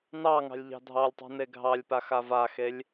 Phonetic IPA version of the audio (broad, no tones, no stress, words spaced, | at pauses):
nɑ ŋɑ̤lʲʎɑ̤dʱɑlʲtˤṳ neɡʱɑlʲpa xavaxelʲ